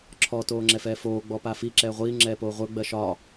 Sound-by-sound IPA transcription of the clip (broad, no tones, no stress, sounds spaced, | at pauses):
ǁʰ ɔ t oː ŋ͡ǁ ɛ f ɛː f oː ɡ͡b ɔ p a f i ǁ ɛː ʁʷ iː ŋ͡ǁ ɛː p oː ʁʷ ə˞ ɡ͡b ɜ ʃ ɒ